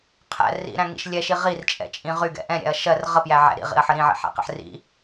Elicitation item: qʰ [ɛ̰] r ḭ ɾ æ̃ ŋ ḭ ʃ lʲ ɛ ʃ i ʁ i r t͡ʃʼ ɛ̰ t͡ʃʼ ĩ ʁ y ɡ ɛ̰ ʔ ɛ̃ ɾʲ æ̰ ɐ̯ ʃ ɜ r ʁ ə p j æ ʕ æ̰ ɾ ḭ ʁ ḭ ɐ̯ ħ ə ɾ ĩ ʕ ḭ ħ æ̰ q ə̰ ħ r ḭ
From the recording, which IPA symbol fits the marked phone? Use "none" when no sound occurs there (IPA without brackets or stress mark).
æ̰